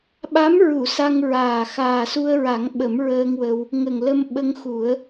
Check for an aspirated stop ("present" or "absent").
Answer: absent